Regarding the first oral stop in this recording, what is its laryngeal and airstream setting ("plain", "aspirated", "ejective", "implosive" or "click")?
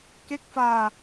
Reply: plain